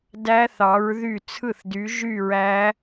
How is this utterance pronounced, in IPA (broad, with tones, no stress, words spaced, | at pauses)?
dæ˦˥θɑ˨˥ɹðy˥˩ t͡sʰɯ˥˩θdy˨˥ ʒy˥˧ɹæ˦˥